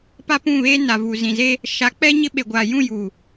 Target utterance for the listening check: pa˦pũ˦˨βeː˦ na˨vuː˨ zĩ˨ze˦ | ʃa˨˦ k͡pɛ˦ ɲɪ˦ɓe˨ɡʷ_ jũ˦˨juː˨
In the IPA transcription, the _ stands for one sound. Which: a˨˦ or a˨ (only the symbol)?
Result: a˨